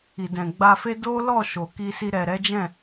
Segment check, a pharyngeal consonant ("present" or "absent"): absent